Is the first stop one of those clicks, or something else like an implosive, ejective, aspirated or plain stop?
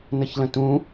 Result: plain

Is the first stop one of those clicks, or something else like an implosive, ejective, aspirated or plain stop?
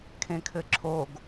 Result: aspirated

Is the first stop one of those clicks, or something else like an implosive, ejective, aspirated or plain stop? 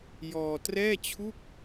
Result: plain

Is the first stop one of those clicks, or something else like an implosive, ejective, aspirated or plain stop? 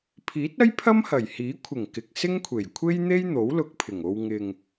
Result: aspirated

